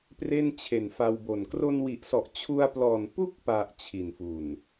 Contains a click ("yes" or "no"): no